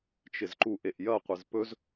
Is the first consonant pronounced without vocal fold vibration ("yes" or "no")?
yes